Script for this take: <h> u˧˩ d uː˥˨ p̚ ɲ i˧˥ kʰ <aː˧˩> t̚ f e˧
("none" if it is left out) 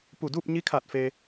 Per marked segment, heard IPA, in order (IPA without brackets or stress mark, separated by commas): p, aː˧˩